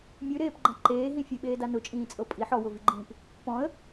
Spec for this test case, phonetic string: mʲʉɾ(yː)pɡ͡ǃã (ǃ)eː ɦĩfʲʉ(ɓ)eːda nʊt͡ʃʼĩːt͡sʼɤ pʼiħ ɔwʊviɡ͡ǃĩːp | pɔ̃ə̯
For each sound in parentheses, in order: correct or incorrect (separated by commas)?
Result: incorrect, correct, correct